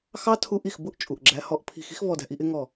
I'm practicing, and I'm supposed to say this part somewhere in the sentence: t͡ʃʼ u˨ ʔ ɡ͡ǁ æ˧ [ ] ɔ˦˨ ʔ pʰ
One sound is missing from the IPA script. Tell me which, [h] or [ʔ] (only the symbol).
h